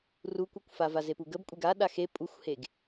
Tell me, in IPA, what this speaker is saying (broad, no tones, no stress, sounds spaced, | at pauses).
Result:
r u kʷ œ kʷ f a v a z e p u ɡ ə b kʷʼ e ɡ a ɗ a x e pʼ u xʷ h e ɡ